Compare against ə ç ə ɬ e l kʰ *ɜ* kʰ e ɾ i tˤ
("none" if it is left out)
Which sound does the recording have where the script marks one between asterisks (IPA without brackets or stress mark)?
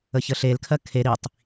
ɜ